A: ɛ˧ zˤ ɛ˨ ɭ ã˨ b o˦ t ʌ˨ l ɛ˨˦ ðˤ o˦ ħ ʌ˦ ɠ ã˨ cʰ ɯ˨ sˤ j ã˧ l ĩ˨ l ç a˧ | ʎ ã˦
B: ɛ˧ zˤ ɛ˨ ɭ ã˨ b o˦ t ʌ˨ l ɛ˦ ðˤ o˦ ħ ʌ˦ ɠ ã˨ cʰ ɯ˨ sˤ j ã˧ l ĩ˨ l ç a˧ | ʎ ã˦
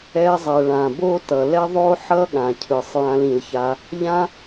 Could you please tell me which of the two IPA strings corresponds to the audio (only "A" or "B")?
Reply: B